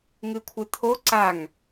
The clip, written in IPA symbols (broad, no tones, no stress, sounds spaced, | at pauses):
ŋ ɨ kʷʰ ɨ t̪ʰ o ǀ a ŋ